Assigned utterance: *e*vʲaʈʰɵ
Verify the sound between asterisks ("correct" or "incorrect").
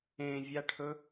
incorrect